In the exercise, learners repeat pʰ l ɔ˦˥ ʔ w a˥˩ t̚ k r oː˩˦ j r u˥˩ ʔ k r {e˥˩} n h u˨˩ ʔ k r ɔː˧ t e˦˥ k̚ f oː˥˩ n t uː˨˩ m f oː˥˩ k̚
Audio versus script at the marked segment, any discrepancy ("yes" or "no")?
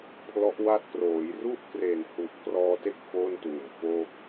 yes